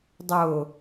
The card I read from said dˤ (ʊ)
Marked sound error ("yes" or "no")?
no